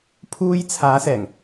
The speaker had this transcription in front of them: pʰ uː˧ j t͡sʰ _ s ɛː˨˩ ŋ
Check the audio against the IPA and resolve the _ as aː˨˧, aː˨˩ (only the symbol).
aː˨˧